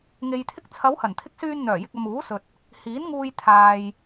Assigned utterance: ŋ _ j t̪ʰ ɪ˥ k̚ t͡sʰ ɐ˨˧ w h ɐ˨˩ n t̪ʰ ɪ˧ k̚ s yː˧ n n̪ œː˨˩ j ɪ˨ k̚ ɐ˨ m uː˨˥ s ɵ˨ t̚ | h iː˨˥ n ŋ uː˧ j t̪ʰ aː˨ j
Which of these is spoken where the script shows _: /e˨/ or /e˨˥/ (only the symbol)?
e˨